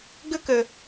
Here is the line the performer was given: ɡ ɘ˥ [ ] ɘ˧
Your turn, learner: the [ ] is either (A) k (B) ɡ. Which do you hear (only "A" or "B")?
A